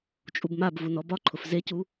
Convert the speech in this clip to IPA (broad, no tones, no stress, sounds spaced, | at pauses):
t͡ʃʼ u b m a b v u n ɔ b ɒ ǃʰ ʊ f z e c u